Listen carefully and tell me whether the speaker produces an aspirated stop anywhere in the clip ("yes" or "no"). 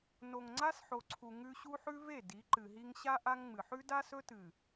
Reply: yes